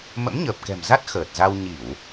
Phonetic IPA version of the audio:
mə̰˧˥mɲəː˨˩p̚kɛ̤˨˩mza˦˥t̚ xəː˨˩t̚ za˧w ɲi˧˩˨w

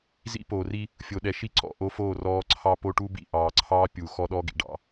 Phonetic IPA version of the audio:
zḭ˦poː˨ri˦ | fʲo˨ɗɛ˨ʃi˦ ǀɔ̰˨ ʔo˦foː˦˨rɔː˦ ǀʰɑ˦po˦ʈu˦ bḭ˨ʔɑː˨ǀʰɑː˦ pʲu˨ xɔ˦ɗɔ˦ɡḭ˨ ɖɑ̰˨

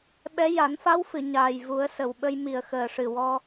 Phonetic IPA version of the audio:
ɓɛ˧˥ ja˨˩˦nfa˧˥wfɨ˨˩˨ ɲaː˨˩jvu˨˩˦ə̯sə˨˩wɓə˧j mi˨˩ə̯xəː˨˩ʂɨ˨˩wɔ˧

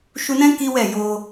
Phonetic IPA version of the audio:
ʃu˧nɛ̃˦ ki˦wɛ˦˨jo˧

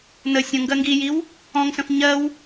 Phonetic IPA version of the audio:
nə sʲə̃ ŋɡɜŋɡijiw | ɔ̃ŋsə̃f ɲɜw

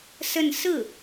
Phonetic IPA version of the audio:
sə˥˧n sɹ̩˥˩

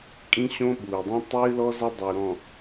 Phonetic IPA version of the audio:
kʼĩ˦ɕõ˦ɓuː˨dˤĩ˦ tˤɨː˦lɔ˦ za˦ dˤo˨u̯ɾɔ̃˨

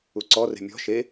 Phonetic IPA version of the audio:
uǀɔre̤ mʲɔ̤ ʃe

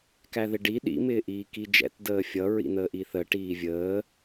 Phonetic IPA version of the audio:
kæðɪɖi ɗḭ mɪːʔiːkid͡ʒɛ̰t dəːfʲʌ ɹḭn̪əːʔiθə ʈiːvʲəː

